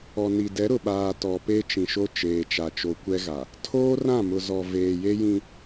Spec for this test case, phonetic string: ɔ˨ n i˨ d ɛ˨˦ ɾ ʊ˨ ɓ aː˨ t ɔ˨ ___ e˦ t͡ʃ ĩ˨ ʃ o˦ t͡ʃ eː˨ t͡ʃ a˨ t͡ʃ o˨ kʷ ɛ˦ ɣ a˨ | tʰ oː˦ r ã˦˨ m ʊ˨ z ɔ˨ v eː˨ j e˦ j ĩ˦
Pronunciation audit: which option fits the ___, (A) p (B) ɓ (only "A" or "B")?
A